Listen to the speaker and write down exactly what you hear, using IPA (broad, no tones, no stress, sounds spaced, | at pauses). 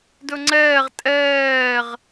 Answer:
d ɵ ŋ͡ǀ ɛː ʁ tʼ ɛː ʁ